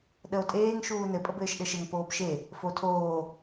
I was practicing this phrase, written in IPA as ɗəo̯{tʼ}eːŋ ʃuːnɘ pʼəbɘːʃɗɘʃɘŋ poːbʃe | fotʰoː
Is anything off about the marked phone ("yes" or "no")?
no